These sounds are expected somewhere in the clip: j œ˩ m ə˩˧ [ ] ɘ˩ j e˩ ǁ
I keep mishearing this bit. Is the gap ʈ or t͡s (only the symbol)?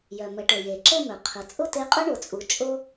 ʈ